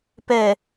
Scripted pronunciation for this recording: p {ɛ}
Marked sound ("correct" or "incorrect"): correct